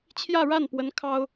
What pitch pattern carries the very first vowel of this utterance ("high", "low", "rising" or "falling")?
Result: falling